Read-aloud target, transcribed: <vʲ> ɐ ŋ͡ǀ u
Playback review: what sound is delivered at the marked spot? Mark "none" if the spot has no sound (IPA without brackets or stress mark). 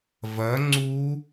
v